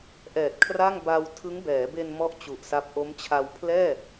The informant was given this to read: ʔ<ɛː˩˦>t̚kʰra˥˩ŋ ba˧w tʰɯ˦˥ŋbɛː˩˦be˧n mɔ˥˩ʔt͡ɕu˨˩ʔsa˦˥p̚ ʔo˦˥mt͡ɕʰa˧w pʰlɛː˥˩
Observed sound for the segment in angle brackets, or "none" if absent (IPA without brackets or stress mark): ɛː˨˩